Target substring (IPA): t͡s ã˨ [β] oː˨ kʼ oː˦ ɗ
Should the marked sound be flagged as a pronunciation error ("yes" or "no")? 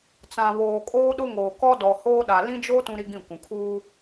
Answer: no